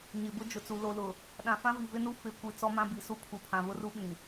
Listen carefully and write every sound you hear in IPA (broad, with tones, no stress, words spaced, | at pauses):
ɲɪ˨bʊ˦ d͡ʒʊ˨t͡su˨ lo˨lʊ˨ | ɗã˨fã˦ vi˨vɪ˦nu˦ fɪ˦˨ kʷi˨ t͡sɔ˦mã˦bi˨su˦ pʰu˨pʰã˨βʊ˦ru˦ ɓĩ˨